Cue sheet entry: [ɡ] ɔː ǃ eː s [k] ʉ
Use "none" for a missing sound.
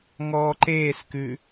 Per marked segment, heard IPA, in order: ŋ, k

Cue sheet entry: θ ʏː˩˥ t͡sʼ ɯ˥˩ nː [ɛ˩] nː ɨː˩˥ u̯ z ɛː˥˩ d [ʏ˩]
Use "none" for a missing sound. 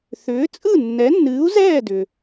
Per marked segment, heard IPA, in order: ɛ˩˥, ʏ˩

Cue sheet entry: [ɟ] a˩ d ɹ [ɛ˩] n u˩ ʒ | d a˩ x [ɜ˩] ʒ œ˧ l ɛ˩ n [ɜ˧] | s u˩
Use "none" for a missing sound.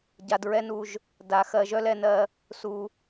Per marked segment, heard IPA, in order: ɟ, ɛ˧, ɜ˩, ɜ˩

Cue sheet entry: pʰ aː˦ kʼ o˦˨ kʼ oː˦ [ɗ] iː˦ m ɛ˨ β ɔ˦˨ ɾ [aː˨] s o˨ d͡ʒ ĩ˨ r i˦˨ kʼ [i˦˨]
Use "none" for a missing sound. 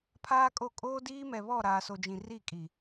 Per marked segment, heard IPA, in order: d, aː˨, i˨

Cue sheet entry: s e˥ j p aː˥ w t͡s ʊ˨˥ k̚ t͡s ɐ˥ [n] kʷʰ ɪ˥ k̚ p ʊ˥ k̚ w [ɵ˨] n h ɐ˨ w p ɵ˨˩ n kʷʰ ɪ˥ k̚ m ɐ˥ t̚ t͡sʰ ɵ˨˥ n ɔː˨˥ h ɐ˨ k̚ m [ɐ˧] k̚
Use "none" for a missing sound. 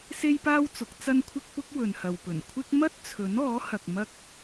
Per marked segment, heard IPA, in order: n, ɵ˨, ɐ˥

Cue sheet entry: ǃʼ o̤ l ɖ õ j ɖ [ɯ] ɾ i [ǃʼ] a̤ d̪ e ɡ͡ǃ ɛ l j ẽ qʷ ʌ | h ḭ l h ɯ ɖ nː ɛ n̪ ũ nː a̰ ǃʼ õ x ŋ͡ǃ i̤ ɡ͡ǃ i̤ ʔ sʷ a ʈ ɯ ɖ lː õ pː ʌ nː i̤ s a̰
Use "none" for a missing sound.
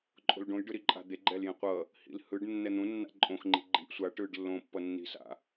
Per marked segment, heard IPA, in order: ɯ, ǃʼ

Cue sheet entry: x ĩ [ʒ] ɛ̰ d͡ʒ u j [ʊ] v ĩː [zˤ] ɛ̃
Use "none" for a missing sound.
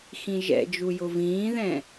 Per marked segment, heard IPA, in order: ʒ, ʊ, ð

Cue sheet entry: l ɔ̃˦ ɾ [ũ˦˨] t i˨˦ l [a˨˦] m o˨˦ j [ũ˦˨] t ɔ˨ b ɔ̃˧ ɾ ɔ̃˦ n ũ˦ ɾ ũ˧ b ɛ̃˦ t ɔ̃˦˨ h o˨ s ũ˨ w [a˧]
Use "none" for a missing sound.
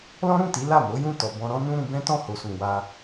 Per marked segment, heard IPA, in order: ũ˦˨, a˦˨, ũ˦˨, a˧

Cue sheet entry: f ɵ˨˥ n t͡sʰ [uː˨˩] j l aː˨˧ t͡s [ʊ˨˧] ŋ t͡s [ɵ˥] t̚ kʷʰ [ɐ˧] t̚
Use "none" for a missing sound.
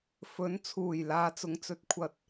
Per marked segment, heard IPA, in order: uː˨˩, ʊ˨˧, ɵ˧, ɐ˧

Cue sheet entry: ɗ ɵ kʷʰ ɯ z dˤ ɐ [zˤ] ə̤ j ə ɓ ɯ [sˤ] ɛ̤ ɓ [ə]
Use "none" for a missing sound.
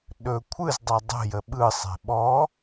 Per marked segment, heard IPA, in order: dˤ, sˤ, ɔ

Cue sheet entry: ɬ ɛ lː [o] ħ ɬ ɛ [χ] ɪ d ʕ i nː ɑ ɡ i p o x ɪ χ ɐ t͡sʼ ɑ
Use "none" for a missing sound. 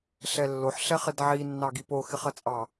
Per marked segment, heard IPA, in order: o, χ

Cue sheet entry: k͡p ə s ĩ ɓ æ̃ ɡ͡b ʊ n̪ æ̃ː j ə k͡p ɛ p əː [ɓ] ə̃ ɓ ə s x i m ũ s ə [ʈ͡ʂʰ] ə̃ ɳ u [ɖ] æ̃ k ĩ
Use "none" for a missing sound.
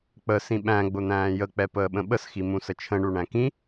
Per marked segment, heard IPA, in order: ɓ, t͡ʃʰ, ɳ

